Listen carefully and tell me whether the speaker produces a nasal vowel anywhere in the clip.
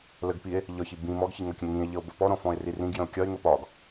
yes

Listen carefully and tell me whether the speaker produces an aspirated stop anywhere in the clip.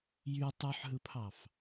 yes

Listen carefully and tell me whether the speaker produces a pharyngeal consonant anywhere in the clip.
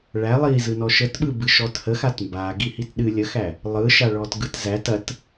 no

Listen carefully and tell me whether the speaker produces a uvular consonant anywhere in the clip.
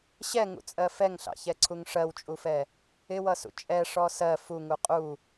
yes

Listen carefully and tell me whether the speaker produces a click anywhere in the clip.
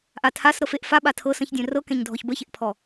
no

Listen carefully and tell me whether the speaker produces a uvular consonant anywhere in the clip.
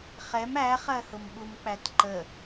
yes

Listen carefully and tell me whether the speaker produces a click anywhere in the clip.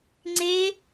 yes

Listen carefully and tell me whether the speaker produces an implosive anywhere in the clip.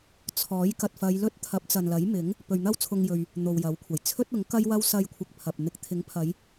no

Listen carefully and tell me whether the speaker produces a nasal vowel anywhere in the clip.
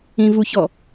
yes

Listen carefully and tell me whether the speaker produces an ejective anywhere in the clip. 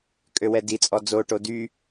yes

